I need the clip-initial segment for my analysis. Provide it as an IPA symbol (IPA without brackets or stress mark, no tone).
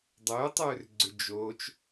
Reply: dˤ